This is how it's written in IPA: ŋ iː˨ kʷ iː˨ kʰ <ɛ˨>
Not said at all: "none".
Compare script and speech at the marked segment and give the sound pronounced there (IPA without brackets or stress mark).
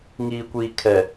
ɛ˨